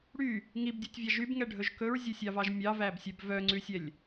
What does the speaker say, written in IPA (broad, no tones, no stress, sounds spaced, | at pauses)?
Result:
ɽ y | ŋ i b dʲ u tʲ vʲ ɑ ʒ y b ŋ ɛ ɖʱ ɵ ʒ k ɵ ɹ zʲ ɵ sʲ ɑ v ɑ ʒ mʲ ɑ v æ b sʲ œ b v œ ŋ͡ǀ ʉ sʲ ɛ lʲ